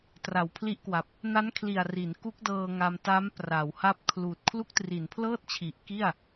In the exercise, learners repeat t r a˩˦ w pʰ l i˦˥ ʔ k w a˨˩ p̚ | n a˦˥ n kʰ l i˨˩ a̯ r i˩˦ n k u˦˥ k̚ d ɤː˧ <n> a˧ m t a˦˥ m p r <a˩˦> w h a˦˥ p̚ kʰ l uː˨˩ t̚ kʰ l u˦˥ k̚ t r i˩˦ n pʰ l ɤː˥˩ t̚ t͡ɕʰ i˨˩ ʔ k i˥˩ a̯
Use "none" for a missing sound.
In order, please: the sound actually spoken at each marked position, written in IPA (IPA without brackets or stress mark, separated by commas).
ŋ, a˩˦